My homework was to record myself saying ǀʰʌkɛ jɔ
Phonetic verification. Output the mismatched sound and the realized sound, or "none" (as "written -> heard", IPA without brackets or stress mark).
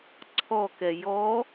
ʌ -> ɔ